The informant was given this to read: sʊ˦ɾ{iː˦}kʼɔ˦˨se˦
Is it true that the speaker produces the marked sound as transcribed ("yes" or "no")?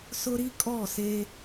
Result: no